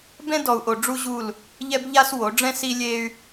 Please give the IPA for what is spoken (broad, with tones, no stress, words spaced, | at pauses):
bɛ̃˦dɔ˨u̯ʔo˨ ɖ͡ʐu˦ʑu˦˨l | ʎɛ˦b ʎa˦s wo˨˦ ɖ͡ʐɛ̃˦ si˦lʲe˦y̯